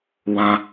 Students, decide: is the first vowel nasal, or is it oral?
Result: nasal